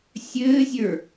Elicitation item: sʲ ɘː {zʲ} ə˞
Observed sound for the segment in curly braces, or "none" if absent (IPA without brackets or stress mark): zʲ